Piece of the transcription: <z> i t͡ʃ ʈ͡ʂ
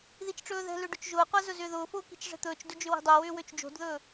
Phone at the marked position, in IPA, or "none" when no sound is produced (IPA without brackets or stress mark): ð